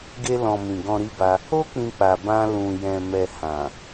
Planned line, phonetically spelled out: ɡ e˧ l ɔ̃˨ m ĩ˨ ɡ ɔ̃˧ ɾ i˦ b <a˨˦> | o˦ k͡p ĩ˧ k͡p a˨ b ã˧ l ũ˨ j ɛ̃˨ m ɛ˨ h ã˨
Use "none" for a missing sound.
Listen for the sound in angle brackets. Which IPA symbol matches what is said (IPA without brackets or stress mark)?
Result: a˧